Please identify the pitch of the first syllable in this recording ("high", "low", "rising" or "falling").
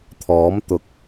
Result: rising